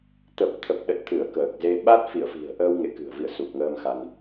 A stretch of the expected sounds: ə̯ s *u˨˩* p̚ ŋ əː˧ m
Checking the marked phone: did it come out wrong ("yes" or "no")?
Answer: no